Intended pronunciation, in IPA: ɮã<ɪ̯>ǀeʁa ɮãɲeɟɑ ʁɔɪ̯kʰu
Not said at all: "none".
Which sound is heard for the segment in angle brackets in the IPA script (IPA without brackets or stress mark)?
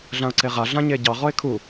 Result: ʊ̯